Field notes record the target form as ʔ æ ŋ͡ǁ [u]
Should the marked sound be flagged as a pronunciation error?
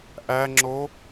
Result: yes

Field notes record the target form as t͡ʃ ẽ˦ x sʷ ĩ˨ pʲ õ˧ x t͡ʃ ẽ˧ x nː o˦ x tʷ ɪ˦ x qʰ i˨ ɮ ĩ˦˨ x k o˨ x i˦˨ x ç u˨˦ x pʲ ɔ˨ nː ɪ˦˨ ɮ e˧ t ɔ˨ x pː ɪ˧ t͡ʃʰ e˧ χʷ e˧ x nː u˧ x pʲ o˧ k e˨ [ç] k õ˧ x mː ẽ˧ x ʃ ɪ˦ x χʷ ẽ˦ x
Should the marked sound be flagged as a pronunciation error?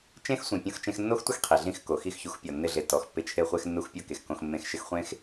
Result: yes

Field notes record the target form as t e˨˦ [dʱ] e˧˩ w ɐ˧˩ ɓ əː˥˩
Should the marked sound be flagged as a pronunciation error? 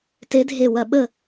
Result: no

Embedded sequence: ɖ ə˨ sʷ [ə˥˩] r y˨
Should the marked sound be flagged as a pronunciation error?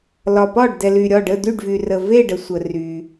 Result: yes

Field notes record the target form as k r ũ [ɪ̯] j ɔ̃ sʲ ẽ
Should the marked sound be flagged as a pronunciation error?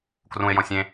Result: no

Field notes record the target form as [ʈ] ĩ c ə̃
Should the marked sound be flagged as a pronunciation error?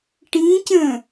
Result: no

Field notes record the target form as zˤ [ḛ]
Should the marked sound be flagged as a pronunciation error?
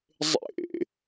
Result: no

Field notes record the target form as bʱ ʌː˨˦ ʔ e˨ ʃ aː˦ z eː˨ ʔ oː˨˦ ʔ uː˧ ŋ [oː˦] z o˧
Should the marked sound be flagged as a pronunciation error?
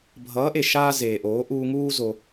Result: yes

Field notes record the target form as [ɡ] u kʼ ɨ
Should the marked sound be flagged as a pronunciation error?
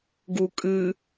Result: no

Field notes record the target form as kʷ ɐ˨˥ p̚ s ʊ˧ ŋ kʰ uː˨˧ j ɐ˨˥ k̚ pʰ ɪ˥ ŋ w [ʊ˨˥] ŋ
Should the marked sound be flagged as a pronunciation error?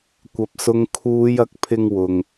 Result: yes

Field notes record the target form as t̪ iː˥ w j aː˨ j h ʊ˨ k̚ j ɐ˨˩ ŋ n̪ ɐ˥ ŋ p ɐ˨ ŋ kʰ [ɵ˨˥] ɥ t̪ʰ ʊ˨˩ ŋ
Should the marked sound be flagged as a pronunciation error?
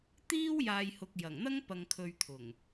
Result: yes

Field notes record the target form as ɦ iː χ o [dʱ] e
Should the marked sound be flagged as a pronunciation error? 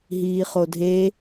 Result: no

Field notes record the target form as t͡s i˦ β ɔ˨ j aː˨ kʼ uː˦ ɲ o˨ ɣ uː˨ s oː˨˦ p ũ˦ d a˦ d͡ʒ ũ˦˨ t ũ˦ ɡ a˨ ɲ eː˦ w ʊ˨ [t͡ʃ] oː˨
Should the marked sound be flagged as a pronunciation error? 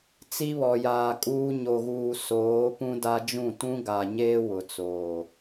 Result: yes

